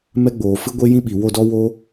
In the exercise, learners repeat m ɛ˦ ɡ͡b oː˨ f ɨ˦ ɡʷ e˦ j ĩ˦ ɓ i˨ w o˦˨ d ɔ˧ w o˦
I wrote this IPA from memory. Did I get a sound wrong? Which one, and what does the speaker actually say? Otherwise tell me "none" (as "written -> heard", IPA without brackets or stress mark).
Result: none